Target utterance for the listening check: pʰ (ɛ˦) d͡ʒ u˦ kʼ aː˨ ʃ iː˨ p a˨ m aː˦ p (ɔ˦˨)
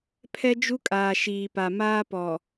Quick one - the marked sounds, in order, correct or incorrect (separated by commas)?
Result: correct, incorrect